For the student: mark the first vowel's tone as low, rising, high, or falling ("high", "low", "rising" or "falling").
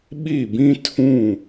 falling